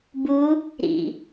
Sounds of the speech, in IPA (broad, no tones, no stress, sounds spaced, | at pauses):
b u | ɾ ḭ